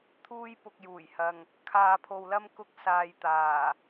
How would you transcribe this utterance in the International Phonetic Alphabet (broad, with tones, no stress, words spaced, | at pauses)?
t̪ʰuː˥jpʊ˧k̚juː˨˩jhɐ˨ŋ | kʰaː˧pʰo˧wlɐ˥m kʊ˥k̚saː˧jt̪aː˨˩